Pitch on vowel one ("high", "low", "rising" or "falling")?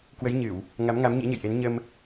rising